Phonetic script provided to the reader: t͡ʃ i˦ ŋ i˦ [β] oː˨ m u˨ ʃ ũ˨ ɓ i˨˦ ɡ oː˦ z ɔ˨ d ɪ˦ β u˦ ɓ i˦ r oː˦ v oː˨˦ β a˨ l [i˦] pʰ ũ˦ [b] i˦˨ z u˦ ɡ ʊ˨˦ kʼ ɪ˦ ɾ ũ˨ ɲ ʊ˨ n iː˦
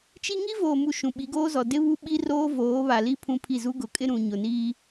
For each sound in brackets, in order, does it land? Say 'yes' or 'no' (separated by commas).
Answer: no, yes, no